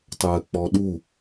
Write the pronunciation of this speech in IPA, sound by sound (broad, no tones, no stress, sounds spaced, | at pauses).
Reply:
tˤ əː k͡p ɔ ɗ u